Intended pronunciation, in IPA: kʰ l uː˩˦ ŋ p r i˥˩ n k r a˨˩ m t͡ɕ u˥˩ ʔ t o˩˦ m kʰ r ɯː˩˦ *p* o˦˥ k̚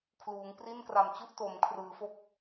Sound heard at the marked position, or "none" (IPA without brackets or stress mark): f